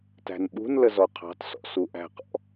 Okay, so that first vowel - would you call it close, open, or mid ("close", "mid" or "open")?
open